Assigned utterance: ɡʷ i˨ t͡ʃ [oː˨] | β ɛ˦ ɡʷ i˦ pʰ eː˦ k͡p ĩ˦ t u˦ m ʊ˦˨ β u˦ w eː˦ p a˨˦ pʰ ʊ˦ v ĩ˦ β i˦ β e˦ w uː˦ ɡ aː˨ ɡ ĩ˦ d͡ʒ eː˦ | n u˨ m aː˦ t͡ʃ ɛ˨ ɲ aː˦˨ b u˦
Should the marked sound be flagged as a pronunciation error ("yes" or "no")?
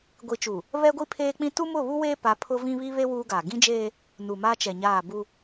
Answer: yes